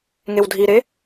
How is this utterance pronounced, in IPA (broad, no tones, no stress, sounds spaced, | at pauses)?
ŋ e w dʱ i ɾ e